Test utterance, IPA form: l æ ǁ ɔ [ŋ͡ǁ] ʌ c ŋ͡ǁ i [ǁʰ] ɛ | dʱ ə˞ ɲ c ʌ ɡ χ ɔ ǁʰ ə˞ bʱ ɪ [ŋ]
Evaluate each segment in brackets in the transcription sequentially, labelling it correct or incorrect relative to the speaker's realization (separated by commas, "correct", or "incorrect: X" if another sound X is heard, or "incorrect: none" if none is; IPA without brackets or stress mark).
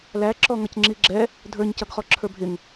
incorrect: ŋ, incorrect: ɡ͡ǁ, correct